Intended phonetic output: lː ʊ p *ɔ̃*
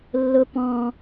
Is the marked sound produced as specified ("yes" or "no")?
yes